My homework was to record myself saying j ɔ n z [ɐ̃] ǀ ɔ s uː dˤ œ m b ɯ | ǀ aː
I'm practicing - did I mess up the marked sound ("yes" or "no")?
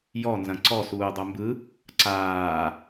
no